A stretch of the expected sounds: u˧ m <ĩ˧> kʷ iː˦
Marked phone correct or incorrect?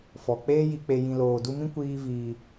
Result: incorrect